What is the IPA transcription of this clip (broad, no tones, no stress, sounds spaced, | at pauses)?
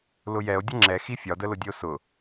l ʊ j ɛ o̯ dʲ ɘ ŋ͡ǁ ɛ x i fʲ ɒ d ə l ʊ dʲ ɘ o̯ s ʊ